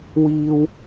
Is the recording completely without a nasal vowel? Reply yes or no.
yes